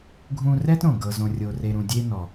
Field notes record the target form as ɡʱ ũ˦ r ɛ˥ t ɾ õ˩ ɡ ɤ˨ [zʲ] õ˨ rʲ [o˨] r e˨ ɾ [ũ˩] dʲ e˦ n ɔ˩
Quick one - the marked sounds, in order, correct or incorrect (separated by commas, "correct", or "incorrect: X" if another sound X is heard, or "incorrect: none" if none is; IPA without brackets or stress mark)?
incorrect: z, correct, incorrect: ũ˨